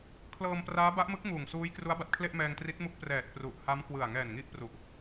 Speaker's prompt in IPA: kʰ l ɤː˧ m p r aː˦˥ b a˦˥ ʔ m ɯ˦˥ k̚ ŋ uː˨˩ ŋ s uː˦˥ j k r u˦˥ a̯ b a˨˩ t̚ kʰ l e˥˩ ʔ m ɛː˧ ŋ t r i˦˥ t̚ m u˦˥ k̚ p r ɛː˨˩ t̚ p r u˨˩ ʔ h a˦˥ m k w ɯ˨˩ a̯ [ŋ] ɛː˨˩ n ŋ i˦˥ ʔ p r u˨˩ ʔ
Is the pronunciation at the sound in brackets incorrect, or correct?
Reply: correct